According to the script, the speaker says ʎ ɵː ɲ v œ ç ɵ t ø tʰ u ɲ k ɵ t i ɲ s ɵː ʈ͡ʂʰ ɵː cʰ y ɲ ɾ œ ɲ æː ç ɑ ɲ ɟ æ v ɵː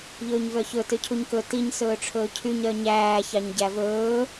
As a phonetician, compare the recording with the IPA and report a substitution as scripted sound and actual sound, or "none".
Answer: tʰ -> cʰ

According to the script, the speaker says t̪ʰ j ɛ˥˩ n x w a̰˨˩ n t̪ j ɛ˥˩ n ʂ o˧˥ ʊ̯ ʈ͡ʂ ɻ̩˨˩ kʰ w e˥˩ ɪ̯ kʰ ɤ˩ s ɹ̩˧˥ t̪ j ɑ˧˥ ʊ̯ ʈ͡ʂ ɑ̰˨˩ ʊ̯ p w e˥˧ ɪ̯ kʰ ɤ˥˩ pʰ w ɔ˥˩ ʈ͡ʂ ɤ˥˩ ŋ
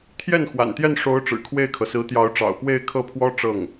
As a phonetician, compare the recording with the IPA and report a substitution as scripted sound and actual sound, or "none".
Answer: ɔ˥˩ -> ɔ˥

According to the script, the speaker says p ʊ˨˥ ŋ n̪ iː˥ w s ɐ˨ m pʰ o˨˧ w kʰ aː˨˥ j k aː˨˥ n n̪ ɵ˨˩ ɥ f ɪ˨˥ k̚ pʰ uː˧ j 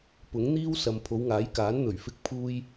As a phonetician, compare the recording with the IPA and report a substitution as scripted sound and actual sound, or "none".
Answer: kʰ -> ŋ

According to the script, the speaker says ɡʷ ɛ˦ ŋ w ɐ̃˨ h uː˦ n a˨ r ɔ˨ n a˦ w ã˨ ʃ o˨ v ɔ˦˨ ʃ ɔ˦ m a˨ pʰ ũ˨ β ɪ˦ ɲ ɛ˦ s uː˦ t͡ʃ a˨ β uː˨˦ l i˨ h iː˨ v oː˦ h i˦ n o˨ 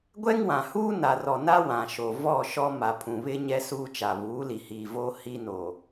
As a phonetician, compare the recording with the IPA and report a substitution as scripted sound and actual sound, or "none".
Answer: ɐ̃˨ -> ã˨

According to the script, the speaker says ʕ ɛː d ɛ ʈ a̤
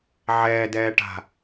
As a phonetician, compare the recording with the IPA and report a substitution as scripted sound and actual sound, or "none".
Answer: ɛ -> ɛː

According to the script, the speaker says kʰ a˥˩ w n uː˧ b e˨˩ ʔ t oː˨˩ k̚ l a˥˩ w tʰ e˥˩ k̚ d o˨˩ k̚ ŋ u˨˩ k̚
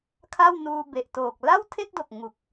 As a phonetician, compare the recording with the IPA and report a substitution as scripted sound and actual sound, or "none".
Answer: none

